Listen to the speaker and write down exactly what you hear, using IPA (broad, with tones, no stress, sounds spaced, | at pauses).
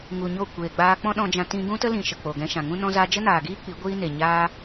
ŋ u˨ ɲ o˦˨ kʷ eː˨ ɡ͡b aː˧ k͡p ɔ̃˦ ɗ ɔ̃˧ d͡ʒ ã˧ t ĩ˧ ɡ ũ˦ t ə˦ l ĩ˨ ʃ ə˨ k͡p o˨ ɡ ɛ̃˧ ʃ ã˨ ŋ ũ˦ n ɔ̃˦ z aː˦ d͡ʒ ə˦ n aː˨ ɡ iː˦ k͡p i˨˦ ɡʷ iː˦ n e˨ ɲ aː˦